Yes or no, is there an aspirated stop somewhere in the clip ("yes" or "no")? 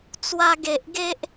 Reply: no